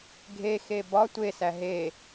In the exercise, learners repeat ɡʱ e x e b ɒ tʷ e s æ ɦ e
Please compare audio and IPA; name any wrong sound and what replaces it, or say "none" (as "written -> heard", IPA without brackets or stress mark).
none